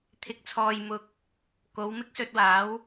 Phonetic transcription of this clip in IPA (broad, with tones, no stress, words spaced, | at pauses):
t̪ʰɪ˨k̚t͡sʰɔː˨jmʊ˨k̚ | ko˨˧w mɪ˥k̚sɵ˧t̚waː˨˥w